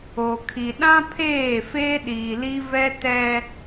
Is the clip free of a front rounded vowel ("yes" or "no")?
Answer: yes